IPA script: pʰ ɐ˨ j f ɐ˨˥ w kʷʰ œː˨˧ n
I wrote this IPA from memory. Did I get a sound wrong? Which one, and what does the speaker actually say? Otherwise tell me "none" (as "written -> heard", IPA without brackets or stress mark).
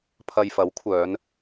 none